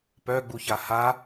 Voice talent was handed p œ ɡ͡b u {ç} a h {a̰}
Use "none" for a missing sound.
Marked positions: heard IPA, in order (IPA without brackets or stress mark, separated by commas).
ç, a